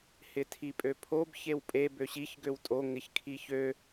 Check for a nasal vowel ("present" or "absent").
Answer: absent